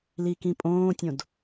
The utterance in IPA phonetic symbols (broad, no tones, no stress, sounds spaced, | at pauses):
l i k ĩ pʼ õː tʲ õ d